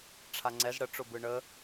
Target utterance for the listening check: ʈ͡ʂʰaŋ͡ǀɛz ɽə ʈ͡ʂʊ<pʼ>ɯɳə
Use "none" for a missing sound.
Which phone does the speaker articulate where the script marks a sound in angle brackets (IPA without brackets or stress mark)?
b